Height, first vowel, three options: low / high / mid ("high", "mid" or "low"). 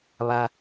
low